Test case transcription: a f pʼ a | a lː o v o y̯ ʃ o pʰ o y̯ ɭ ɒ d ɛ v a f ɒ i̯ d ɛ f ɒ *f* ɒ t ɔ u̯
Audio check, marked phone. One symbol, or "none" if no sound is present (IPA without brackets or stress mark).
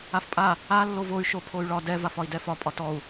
pʼ